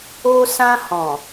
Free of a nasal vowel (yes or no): no